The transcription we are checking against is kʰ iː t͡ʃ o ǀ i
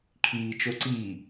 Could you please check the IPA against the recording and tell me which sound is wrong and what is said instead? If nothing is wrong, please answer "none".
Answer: none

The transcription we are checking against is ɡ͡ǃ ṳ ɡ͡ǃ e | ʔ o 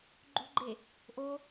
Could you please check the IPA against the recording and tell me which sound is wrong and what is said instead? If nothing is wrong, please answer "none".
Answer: none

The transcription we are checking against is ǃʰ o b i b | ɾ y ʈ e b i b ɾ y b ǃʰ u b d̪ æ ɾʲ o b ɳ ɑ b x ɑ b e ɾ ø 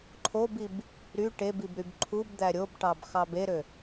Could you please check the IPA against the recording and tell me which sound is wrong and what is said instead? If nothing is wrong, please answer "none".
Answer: ɳ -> ʈ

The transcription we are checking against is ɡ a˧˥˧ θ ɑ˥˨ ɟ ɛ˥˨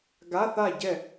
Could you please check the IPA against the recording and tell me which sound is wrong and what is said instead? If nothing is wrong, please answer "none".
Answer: ɑ˥˨ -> a˥˨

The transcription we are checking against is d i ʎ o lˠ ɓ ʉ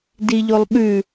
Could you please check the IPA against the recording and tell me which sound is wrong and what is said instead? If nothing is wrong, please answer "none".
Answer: none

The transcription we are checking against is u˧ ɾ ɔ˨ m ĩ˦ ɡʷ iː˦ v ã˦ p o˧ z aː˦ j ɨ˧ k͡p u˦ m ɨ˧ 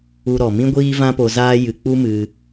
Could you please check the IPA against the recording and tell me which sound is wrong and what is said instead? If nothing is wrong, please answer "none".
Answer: none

